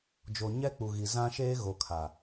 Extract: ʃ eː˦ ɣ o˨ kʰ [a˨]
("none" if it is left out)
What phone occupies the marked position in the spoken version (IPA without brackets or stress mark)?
a˨